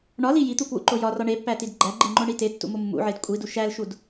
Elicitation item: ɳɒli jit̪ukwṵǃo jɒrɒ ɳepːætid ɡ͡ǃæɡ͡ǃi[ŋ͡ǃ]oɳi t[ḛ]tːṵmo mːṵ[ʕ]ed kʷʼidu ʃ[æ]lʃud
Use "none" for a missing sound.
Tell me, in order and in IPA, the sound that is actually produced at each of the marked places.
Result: ŋ͡ǃ, e, ʕ, æ

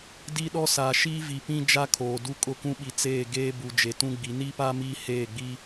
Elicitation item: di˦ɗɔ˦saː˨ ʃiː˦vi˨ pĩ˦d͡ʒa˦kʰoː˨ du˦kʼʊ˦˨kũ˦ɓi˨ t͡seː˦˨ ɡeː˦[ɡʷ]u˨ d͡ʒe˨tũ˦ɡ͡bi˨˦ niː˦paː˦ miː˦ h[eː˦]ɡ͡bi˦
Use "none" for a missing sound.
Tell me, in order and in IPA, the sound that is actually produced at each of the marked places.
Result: b, eː˦˨

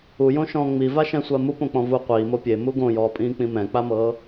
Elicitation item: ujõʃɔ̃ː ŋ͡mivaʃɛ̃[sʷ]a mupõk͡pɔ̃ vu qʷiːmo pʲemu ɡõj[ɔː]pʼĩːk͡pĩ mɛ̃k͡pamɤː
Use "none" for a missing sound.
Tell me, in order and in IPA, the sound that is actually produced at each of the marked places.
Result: sʷ, ɔː

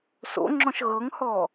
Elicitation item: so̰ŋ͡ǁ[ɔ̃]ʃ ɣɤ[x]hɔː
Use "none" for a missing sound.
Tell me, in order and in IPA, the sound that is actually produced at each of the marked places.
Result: ɔ̃, ŋ

